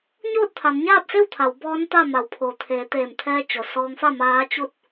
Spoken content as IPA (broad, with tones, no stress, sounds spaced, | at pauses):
ɲ oː˥˨ t̚ t̪ʰ a˩˧ n ɲ aː˥˨ p̚ s e˥˨ w t̪ʰ a˩˧ w b ɔː˧˥ n t̪ a˥˨ m a˩˧ w pʰ o˩ t̪ʰ eː˩˧ t̪ eː˧˩ m t̪ʰ ɛː˧ t͡ɕ o˩ s ɔː˧ ŋ f a˥˨ m aː˧˥ t͡ɕ u˥˨ t̚